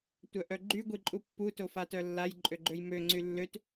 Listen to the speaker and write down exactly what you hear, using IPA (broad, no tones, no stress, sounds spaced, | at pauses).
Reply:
tʷ œ ʔ œ ɡ͡ǃ y ɡʷ i ǃʼ u pː u t o f a t œ lː a j ǃʼ ø ɡ͡ǃ ø j m ø ŋ͡ǀ y lː ø t